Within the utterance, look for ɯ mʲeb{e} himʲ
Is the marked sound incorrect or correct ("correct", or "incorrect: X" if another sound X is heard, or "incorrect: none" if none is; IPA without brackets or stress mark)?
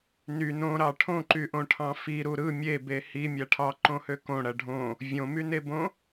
correct